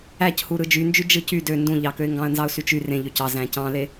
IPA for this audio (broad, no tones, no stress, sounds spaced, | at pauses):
æ c h u ɾ ɯ d͡ʒ y n d͡ʒ y d͡ʒ ɯ c y d ø n d ũ ʎ ɑ k ø ɪ̯ ŋ ɡ ɑ̃ ə̯ n z ɑ ʊ̯ s y t͡ʃ y r ẽ ʎ ø c ɑ z æ̃ c ɑ̃ l e